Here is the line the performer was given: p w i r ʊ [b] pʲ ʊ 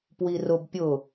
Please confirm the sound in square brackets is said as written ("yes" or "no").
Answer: yes